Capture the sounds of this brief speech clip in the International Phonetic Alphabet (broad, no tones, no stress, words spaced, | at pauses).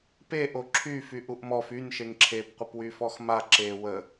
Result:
pe ʔoǁʰy fyʔuʔmɔf yn ʃeŋǁʰep qʷəpwyfɔxma ǁe wə